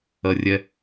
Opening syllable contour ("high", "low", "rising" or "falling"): low